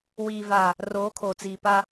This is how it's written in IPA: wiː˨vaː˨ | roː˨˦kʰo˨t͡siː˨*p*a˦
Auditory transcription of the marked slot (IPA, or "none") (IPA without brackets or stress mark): p